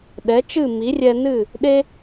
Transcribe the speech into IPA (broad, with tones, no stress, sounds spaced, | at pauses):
ɗ ɛ˩˥ t͡ʃ ɨ˥˩ m i˩˥ rʲ ɛ˧ n ɨ˥˩ | ɗ e˥